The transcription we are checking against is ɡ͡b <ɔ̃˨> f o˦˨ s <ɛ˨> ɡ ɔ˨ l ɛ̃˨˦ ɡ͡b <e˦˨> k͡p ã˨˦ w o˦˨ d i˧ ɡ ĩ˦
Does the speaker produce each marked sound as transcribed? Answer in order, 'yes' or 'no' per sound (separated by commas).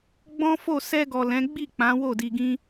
no, no, no